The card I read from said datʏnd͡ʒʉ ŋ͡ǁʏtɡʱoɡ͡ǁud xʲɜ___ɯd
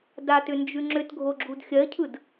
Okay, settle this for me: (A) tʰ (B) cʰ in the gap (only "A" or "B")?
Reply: B